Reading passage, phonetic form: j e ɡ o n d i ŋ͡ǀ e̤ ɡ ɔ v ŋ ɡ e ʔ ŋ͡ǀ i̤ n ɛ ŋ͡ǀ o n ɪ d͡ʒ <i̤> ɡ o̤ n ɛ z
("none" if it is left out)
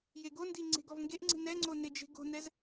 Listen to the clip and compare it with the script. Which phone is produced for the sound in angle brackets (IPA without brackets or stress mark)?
e̤